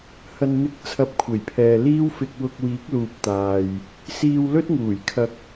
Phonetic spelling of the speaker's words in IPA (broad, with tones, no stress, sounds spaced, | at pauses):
h ɐ˨ n n̪ ɪ˨˥ k̚ t͡sʰ ɐ˧ p̚ kʷʰ e˨˩ j pʰ ɛː˨ l iː˥ w f ɪ˧ k̚ w ʊ˧ k̚ w iː˨˥ k̚ l uː˨ p̚ t̪ aː˨ j | s iː˧ w l ɵ˥ t̚ ŋ uː˨˩ j kʰ ɐ˧ k̚